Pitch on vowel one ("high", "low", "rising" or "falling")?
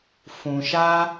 low